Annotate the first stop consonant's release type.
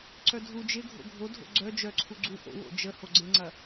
click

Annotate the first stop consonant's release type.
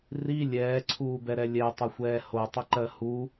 click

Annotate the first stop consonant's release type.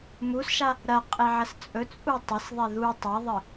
ejective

